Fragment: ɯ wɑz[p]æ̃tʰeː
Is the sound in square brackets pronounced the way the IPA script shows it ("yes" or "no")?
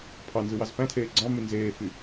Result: yes